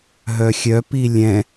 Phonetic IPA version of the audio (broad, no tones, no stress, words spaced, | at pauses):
ɦœxʲœpi lʲɛ̃